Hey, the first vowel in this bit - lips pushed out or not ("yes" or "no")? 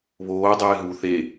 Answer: yes